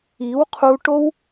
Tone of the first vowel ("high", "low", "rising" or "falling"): rising